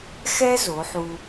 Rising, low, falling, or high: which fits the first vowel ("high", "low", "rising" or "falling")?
high